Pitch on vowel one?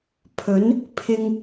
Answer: rising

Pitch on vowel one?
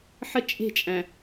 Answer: high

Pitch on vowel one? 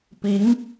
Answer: rising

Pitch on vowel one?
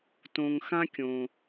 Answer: low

